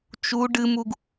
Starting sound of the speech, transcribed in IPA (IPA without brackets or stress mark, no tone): t͡ʃ